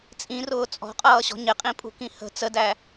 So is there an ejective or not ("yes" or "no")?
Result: yes